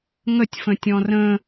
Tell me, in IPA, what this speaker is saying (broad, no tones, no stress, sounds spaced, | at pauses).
ŋ ə tʲ f ə̃ tʲ ɔ̃ r ə̃